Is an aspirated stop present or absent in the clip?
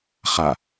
absent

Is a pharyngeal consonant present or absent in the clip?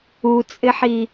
present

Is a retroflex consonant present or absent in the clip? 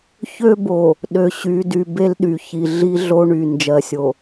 present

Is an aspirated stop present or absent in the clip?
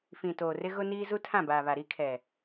present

